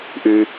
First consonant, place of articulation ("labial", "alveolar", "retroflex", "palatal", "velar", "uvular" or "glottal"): glottal